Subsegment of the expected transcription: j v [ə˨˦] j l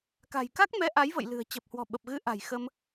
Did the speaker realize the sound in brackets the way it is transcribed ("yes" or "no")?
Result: no